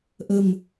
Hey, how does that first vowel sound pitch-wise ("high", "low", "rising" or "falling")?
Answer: low